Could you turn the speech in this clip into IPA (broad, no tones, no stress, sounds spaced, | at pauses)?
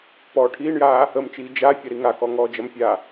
p ɔː ʈʰ iː ɳ j aː | ə m t͡ʃ iː d͡ʒ a fʲ ɐ ɾ i ŋ a k ɔ ŋ ɔː d͡ʒ ɐ m fʲ aː